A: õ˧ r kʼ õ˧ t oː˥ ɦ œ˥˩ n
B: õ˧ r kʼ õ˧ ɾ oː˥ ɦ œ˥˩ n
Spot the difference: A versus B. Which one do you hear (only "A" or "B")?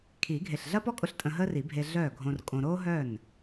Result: B